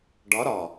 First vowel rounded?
yes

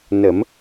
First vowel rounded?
no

